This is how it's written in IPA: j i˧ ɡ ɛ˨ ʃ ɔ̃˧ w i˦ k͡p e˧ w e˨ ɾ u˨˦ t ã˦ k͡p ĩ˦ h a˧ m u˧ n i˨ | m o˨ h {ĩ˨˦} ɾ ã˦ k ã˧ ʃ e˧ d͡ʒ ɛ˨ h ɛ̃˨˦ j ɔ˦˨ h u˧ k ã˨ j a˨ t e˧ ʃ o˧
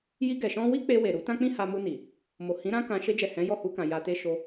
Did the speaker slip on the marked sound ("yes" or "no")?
no